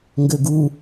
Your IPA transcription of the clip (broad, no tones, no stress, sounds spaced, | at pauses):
ŋ ɡ ø ɡ u